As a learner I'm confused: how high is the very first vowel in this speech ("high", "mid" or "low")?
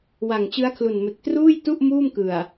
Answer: low